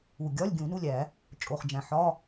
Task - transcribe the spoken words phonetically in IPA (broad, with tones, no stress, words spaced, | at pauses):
u˨˩ ɡʲɒ˧˥˧lʲ ɡʲũ˨˩˦nu˧˥˧lʲæ˨˩˦ | t͡ʃʼo˨˩χd͡ʒæ̃˨˩ ħɒ˧˥˧